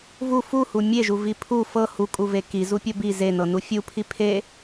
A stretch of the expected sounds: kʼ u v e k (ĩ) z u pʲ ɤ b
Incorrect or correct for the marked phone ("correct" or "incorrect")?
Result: incorrect